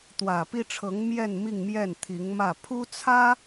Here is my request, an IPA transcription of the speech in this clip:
t̪ w ä˨˩ p i˥ ʈ͡ʂʰ ɤ˧˥ ŋ m j ɛ˥˧ n m i˥˧ ŋ m j ɛ˥˩ n t̪ʰ i˧˥ ŋ m ä˥˩ pʰ u˥ t͡sʰ ä˥

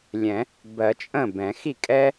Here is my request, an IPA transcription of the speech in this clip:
lʲ ɛ̃˨˩˦ | b ɜ˨˩˦ t͡ʃʼ ə̃˥˩ b ɛ̃˨˩˦ x i˥˩ kʼ ɛ˥

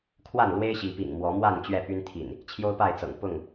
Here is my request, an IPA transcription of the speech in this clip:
kʰ w a˥˨ n l w e˦ ɪ̯ ɕ i˨˦ p ḭ˨˩ ŋ m w ɔ˨˦ m w a˥˨ n t͡ɕ ɥ ɛ˥˨ p y˦ n t̪ʰ ḭ˨˩ n | t͡ɕʰ j o˦ ʊ̯ p a˥˨ ɪ̯ t͡s ɤ̰˨˩ ŋ p ʊ˥˨ ŋ

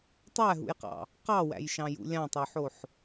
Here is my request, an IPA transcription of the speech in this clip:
tˤ æ ɦ ṵ j q ɑ̰ | q ɑ w æ̰ j ʃ ɑ̃ j ṵ lʲ ɑ̃ tˤ o ħ o ħ

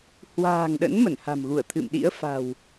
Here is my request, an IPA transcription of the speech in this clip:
h w a̤ː˨˩ ŋ ɗ ə̰˧˥ n m ə˧˩ n h a̤˨˩ m ɣ u˧˩ ə̯ t̪ʰ ɨ̰˧˨ m ɗ ḭ˧˥ ə̯ f a̤˨˩ w

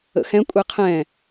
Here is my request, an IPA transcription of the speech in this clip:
ə̰ x ɛ̃ kʷʼ e qʰ ɛ̃

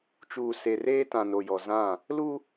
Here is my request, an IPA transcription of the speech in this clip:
t͡ʃ uː˨ s e˨ r eː˦ t ã˨ n o˨ j ɔ˨ z ã˦˨ | l u˦

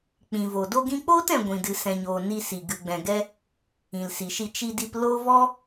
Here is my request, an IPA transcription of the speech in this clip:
k͡p ĩ˨ v o˨ d o˧ ɡ ĩ˧ k͡p oː˦ t ɛ̃˨ ɡʷ ĩ˨ d ɨ˨ s ɛ̃˨ ɲ oː˨ n i˧ s i˨ ɡ ɨ˨ ɡ͡b ɛ̃˨ ɡ ɛ˦ | ĩ˨ l s i˨ ʃ i˧ t͡ʃ i˧ d i˧ p l o˦ v ɔ˦

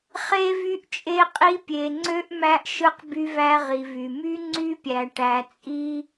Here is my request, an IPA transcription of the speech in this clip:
χ e˥ v y˥ ʔ t͡ʃʼ e˥ qʼ i˥ pʲ e˧ ŋ͡ǀ ø˥ ʔ m æ˥ ʔ ʃ ɯ˥ q b y˥ v æ˥ ʁ i˧ v y˧ m y˥ ŋ͡ǀ y˥ pʲ æ˧ ʈ æ˧ t͡sʼ i˥

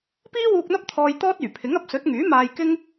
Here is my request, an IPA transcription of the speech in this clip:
p iː˥ w uː˧ k̚ n̪ ɐ˥ p̚ t̪ʰ ɔː˧ j t̪ ɔː˥ t̚ yː˨˩ pʰ ɪ˨˥ ŋ ɐ˨˥ p̚ s ɵ˨˥ t̚ ŋ yː˨˥ m aː˧ j k ɪ˥ ŋ

